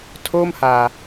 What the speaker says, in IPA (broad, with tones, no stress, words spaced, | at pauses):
tʰoː˥˩mhaː˨˩